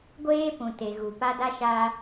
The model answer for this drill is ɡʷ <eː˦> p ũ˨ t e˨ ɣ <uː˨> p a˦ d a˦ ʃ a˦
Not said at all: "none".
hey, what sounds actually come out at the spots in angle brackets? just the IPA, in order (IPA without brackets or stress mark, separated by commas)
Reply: eː˦, u˨